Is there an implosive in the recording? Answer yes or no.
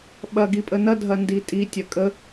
yes